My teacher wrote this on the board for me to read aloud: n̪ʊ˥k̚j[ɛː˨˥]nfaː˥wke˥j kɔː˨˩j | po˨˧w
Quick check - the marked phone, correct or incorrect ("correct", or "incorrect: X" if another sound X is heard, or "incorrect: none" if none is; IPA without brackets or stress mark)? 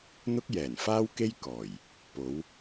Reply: incorrect: ɛː˨˩